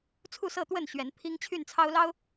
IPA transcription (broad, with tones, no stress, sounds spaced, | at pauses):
t͡sʰ u˥˨ s ɤ˥˨ t̪ w ə˥˨ n ɕ ɥ ɛ˨˦ n pʰ i˦ ŋ t͡ɕʰ y˥˨ n t͡sʰ ɑ˦ ʊ̯ l ɑ˦ ʊ̯